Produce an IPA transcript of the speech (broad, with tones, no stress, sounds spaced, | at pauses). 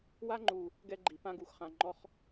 w a˦ ŋ͡ǃ u˨ | ɡ ɛ˦ ɡ͡ǃ i˨ p ã˦ ɡ u˨ x χ ã˨ ŋ͡ǃ ɔ˦ χ